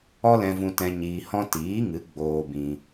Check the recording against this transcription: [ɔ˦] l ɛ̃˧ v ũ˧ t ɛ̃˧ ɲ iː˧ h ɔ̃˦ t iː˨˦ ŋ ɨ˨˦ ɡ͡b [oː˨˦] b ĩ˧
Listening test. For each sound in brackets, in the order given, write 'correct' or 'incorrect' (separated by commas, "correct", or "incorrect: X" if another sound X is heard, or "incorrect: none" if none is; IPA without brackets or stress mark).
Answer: correct, incorrect: oː˧